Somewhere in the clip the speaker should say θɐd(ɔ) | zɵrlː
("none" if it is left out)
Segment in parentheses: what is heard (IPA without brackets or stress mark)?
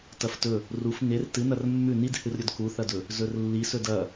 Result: ɵ